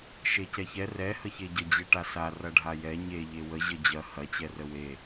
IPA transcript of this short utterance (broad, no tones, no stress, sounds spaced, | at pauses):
ʃ e c ɛ ç ɛ r ɛ h ə ç e ɟ ə d͡ʑ e ʈ a s a r ɐ ɖʱ a j ɛ ɲ e ʎ e w ə ʑ ə d͡ʑ ɐ h ɐ t͡ɕ ɛ r ə w e